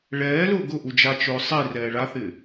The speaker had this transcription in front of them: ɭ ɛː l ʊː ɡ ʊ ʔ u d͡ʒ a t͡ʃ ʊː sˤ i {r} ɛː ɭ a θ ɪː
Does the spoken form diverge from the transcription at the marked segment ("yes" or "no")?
no